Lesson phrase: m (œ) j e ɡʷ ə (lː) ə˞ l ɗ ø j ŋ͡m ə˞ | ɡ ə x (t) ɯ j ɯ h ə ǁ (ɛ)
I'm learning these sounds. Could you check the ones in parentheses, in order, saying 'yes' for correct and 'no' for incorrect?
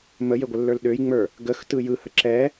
no, yes, yes, yes

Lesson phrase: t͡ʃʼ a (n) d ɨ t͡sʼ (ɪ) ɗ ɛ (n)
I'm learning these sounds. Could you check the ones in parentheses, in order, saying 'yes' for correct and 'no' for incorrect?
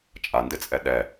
yes, no, no

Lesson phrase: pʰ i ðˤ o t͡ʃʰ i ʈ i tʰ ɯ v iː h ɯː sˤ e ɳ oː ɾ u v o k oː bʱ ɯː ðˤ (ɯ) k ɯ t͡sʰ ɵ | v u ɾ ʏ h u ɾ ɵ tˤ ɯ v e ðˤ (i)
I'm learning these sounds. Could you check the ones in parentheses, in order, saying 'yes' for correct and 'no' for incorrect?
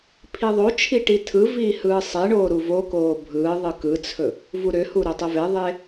yes, no

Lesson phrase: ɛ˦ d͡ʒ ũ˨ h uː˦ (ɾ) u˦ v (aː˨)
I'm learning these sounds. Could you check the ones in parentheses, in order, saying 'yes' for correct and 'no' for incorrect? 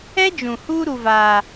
yes, no

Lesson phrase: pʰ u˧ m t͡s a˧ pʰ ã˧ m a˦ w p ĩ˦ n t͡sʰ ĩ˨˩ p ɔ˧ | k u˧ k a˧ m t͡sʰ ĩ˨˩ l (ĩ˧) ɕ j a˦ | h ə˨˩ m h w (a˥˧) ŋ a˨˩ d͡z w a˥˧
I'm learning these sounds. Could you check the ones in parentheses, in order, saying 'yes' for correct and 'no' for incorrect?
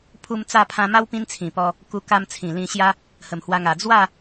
yes, no

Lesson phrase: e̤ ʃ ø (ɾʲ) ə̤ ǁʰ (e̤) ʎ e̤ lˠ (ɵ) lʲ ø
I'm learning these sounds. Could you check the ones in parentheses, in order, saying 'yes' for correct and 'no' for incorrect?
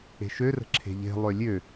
no, yes, no

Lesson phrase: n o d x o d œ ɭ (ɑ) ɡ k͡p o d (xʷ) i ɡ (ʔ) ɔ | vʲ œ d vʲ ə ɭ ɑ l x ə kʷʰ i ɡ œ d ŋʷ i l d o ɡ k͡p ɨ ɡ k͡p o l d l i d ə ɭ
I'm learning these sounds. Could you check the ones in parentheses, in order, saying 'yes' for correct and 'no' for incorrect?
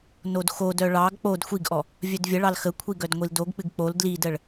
yes, yes, yes

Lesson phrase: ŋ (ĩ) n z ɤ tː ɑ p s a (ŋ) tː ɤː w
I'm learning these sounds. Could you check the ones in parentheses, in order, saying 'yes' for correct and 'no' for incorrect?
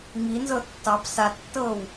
no, no

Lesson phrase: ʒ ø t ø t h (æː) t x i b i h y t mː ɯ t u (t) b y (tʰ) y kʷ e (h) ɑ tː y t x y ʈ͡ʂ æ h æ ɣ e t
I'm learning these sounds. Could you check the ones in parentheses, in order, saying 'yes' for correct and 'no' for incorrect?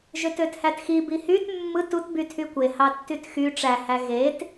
no, yes, yes, yes

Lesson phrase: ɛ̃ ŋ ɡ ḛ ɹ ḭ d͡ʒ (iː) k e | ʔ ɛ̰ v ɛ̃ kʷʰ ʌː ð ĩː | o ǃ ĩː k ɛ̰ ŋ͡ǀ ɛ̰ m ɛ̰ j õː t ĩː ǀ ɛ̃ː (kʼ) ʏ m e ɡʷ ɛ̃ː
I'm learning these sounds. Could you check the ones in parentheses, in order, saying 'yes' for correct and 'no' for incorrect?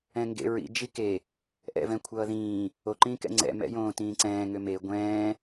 no, no

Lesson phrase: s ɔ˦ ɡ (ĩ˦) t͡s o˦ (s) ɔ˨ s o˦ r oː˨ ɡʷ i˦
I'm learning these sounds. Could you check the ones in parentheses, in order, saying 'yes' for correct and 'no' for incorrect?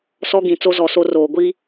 no, no

